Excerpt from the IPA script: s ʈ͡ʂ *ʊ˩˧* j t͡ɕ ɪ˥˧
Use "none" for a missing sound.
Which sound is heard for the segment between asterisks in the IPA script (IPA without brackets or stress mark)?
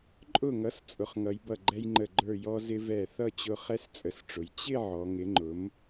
ʊ˩˧